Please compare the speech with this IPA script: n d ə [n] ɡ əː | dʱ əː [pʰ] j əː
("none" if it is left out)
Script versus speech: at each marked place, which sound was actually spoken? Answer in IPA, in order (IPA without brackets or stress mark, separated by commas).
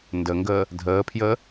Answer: ŋ, pʰ